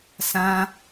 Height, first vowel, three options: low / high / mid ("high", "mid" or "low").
low